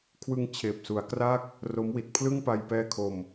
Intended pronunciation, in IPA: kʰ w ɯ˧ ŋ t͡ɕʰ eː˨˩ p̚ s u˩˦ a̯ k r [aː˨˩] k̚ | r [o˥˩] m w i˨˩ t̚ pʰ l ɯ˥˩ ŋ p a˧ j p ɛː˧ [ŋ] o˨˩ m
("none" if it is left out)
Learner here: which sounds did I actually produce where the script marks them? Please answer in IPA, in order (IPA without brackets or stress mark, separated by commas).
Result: aː˥˩, o˦˥, kʰ